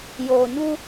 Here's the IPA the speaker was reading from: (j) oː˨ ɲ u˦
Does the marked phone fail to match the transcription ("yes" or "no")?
no